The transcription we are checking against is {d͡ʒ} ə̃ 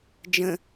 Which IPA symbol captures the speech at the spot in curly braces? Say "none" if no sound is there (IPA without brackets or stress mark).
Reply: d͡ʒ